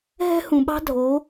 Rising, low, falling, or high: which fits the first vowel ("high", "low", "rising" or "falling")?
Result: high